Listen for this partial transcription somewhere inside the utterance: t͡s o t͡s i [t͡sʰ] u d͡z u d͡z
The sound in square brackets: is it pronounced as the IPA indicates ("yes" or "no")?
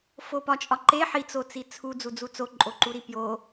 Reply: yes